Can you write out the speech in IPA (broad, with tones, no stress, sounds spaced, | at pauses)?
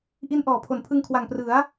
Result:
ʔ i˦˥ n ʔ ɔː˩˦ pʰ o˨˩ n pʰ ɯ˧ ŋ kʰ w a˨˩ ŋ p r ɯ˩˦ a̯